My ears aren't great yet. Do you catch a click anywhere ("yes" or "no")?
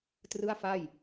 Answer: no